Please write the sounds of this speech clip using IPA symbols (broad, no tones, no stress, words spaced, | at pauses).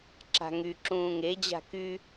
ǁa̤ŋy ǁũːŋe d͡ʑa̤ky